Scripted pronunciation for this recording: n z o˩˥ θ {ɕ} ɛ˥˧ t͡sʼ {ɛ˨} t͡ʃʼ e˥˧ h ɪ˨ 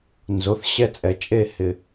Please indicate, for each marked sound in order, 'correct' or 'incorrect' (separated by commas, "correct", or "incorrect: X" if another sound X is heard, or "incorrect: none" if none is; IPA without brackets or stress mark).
correct, correct